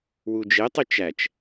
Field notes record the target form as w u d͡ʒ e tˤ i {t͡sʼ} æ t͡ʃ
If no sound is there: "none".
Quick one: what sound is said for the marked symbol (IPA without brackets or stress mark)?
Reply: t͡ʃ